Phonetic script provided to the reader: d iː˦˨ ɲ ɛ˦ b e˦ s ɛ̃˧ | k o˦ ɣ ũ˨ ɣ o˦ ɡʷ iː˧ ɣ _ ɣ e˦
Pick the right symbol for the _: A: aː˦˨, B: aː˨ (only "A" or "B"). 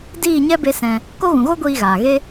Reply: B